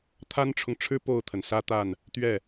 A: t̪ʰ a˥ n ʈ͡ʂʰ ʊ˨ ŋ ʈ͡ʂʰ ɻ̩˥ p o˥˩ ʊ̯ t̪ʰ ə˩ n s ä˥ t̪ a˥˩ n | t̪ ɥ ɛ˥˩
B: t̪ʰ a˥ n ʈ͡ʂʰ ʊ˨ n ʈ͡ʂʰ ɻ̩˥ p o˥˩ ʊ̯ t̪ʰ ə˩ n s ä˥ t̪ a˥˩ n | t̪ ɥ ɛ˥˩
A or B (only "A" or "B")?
A